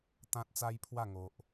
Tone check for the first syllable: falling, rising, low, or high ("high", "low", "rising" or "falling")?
high